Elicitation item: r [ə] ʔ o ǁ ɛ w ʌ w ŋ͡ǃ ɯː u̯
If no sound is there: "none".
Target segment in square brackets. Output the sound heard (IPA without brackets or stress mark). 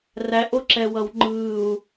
æ